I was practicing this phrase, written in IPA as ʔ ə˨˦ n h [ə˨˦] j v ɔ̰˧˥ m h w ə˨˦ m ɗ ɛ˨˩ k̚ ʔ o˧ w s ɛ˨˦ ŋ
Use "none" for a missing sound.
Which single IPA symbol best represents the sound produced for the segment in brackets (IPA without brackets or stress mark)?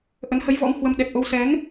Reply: ə˨˦